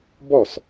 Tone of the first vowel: falling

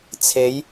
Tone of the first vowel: rising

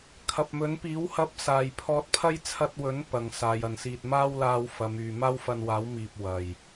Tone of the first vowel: low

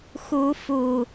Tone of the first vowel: rising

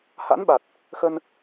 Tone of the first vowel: rising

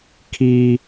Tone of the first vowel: high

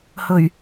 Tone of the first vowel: low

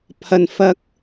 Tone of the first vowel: low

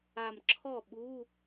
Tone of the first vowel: low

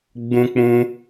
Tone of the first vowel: high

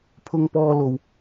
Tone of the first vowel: high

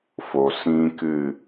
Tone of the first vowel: low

